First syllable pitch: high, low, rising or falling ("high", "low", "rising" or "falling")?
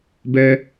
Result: high